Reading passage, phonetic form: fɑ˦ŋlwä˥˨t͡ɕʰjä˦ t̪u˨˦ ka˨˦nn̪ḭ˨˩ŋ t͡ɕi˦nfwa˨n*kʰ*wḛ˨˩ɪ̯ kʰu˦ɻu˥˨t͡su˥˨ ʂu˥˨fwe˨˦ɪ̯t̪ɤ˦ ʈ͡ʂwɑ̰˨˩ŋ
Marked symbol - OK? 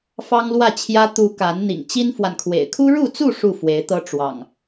yes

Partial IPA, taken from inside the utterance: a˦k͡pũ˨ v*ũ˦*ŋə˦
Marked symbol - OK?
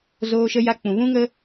yes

